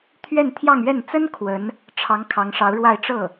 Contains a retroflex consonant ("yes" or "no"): yes